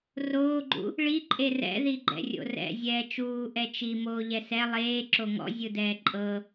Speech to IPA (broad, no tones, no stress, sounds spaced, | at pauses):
r oː ɡ͡ǃ ṵ | ɭ i ǃʼ e r ɛ̰ ð i ɡ͡ǃ ɛ̰ rʲ o̰ r ɛ̰ zʲ ɛː t͡ʃ uː ʔ ɛ t͡ʃ i m oː ʎ ɛ s ɛ lˠ eː ǁ o ŋ ɔ̰ zʲ ɯ d ɛː ǃʼ ɤ